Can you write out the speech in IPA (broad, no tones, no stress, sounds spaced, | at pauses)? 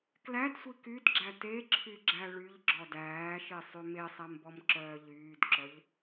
k l æ d sʷ i k y d ɡ͡ǁ æ t e ǁʰ y ɡ͡ǁ æ ɭ y ʎ ɡ͡ǁ ɔ d æː ʃ e sˤ y m e sˤ æ m b ɔ m ǁ œː ʎ yː d ǁ œ ʎ